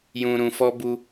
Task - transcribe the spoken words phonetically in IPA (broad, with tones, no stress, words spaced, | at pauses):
jũ˧ɾũ˧fɔ˦ bu˧